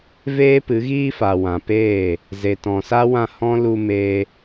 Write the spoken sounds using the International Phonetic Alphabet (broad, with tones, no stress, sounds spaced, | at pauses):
v eː˦ p ɨ˨˦ ɣ iː˦ f a˨ w ã˨ p eː˦˨ | z e˨ t ɔ̃˨ s a˦ w ã˦˨ h ɔ̃˦ l u˧ m e˧